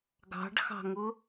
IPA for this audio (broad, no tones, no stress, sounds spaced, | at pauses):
ɡ ɑ̤ ɖ x ɑ̤ ŋ ʊ